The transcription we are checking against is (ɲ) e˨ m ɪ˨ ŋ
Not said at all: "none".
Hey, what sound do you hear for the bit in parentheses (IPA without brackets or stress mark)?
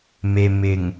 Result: m